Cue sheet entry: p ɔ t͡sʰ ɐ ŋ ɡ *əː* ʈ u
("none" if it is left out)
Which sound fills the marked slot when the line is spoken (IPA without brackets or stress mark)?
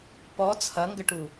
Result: ə